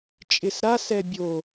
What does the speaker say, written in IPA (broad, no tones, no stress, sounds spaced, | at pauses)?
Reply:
t͡ʃʼ ɪ s ɾ a s ɛ bʲ o